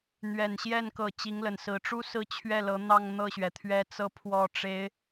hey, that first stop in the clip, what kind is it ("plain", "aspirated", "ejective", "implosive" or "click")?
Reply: plain